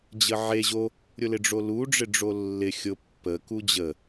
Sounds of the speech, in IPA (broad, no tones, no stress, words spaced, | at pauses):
d͡ʑəʕe ʑo | ɾʲʊlɪɖ͡ʐolu ɖ͡ʐɪɖ͡ʐolːɪ xʲʊ pːəku d͡ʑə